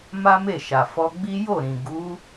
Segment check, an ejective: absent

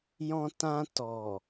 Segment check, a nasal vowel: present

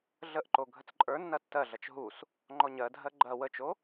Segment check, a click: present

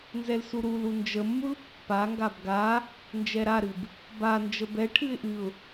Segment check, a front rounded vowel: absent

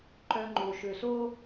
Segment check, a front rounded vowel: present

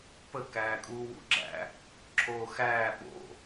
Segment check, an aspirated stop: present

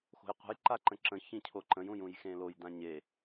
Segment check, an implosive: absent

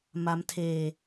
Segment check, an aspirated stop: present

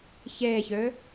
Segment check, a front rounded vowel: present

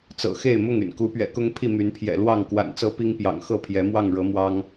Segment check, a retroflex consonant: present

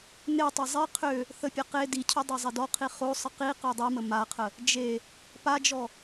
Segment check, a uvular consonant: present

